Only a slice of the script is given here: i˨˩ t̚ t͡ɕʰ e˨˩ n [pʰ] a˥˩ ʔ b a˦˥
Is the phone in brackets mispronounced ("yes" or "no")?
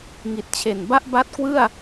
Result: yes